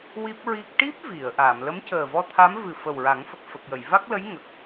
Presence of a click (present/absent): absent